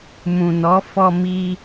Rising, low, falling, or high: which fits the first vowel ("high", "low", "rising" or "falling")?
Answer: low